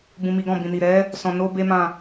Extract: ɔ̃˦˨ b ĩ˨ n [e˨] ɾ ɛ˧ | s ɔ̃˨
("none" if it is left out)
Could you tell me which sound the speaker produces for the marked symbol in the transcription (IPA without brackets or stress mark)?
i˨